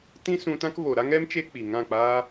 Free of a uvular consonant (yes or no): yes